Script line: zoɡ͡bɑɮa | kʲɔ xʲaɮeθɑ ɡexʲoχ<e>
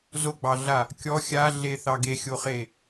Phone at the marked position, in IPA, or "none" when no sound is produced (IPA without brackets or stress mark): e